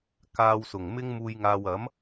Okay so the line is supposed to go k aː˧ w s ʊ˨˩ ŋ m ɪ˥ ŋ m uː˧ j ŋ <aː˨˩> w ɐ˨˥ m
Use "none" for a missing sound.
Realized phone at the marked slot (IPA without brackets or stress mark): aː˧